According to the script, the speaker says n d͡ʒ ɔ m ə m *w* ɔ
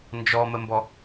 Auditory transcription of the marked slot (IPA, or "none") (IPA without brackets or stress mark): b